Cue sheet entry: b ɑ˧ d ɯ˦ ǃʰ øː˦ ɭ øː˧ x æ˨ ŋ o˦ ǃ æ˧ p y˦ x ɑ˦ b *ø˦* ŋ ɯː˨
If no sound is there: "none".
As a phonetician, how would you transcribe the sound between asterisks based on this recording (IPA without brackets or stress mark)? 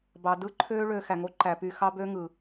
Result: ø˦